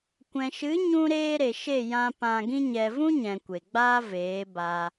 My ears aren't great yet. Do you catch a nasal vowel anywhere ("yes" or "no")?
yes